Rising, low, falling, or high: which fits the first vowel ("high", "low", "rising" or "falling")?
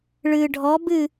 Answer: low